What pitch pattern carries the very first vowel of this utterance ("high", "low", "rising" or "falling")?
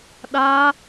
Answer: high